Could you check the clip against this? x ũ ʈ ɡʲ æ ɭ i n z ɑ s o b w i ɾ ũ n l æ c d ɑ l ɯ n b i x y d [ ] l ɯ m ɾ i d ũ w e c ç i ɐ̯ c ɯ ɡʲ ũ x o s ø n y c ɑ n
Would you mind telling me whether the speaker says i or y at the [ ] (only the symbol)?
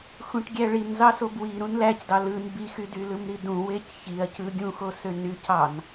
y